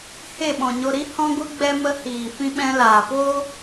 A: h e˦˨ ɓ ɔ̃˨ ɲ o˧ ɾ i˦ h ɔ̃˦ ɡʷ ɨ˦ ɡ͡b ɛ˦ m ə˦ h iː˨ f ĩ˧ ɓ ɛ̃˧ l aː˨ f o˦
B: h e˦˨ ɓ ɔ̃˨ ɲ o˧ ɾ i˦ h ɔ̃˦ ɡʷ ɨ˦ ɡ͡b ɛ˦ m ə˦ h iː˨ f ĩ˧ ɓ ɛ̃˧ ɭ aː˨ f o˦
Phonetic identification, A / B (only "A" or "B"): A